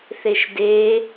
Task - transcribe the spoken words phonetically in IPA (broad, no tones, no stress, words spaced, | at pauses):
θeʃde